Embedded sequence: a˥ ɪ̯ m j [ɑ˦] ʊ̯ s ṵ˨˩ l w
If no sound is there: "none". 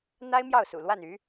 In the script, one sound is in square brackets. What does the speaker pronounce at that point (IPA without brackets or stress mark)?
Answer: ɑ˥˩